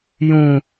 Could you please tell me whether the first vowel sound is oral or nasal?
nasal